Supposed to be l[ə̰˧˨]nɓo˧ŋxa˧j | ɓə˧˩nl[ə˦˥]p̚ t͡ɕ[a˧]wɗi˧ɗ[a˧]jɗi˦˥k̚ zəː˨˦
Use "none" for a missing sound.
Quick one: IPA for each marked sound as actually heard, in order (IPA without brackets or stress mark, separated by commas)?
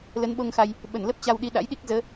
ə˨˦, ə˦˥, a˧, a̰˧˥